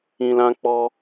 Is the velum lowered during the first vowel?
yes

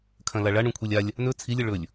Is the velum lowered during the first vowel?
yes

